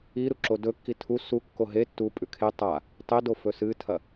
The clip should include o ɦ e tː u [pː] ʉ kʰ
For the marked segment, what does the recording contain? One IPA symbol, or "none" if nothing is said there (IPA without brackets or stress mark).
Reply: pʼ